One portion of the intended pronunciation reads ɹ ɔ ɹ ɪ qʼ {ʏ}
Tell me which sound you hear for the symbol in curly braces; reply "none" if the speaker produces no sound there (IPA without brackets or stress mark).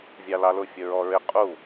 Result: u